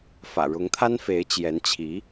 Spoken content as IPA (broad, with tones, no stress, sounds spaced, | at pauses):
f ä̰˨˩ ɻ ʊ˧˥ ŋ t̪ʰ a˥ n f e˧˥ ɪ̯ t͡ɕ j ɛ˧˥ n t͡ɕʰ i˧˥